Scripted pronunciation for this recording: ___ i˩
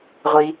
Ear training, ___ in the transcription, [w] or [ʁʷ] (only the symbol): ʁʷ